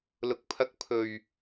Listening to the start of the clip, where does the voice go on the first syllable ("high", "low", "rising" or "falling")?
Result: low